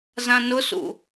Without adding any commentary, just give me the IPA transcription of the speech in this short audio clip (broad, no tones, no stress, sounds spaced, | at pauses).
z ã n ʊ s ṵ